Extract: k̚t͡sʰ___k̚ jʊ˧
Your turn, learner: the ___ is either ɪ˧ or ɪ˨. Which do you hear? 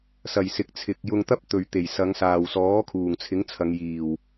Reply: ɪ˨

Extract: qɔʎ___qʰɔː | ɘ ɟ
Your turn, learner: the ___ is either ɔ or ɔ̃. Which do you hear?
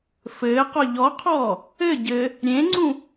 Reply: ɔ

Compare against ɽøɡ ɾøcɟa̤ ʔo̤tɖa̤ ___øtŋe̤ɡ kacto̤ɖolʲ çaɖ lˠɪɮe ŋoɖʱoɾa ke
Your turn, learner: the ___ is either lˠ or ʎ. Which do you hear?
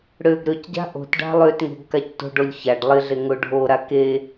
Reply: lˠ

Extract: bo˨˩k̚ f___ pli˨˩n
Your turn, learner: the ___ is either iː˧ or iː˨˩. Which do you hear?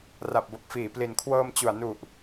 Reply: iː˨˩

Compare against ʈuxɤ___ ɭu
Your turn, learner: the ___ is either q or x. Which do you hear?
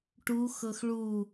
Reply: x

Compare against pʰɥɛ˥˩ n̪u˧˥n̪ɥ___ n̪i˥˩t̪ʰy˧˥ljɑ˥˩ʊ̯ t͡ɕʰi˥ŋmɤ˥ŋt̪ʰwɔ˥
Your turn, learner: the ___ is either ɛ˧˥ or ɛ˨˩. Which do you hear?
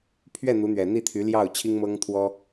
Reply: ɛ˨˩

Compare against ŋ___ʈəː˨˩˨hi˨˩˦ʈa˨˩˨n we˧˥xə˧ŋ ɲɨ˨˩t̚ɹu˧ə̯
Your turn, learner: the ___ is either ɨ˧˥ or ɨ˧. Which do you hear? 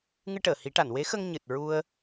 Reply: ɨ˧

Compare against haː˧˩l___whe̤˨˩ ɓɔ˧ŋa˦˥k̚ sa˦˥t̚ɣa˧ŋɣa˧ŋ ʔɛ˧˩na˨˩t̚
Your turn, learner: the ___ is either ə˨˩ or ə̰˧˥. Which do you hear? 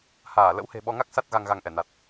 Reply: ə̰˧˥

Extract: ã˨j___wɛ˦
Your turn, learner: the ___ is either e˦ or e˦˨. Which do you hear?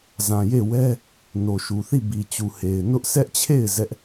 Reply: e˦˨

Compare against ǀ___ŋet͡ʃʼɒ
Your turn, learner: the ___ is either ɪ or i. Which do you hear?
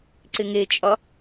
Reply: ɪ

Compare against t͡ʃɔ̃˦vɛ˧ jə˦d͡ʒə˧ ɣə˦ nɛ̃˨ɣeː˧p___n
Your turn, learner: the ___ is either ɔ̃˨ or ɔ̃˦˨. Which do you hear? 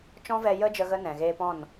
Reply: ɔ̃˦˨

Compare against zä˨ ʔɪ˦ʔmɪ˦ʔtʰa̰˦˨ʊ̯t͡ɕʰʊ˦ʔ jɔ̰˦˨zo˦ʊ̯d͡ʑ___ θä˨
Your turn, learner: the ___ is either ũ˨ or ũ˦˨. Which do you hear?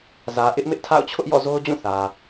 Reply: ũ˦˨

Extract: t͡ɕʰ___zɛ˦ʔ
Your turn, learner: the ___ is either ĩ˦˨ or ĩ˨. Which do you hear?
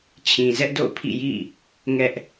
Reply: ĩ˨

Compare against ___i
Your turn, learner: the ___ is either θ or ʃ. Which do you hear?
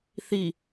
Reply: θ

